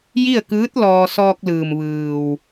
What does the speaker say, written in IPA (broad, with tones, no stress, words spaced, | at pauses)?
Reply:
ji˥˨ə̯kɯː˧˥t̚ lɔː˧ sɔː˧k̚lɯː˩m ʋɯː˩w